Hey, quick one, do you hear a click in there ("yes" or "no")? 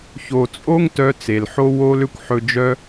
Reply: no